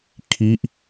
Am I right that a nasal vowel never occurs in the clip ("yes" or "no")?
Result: yes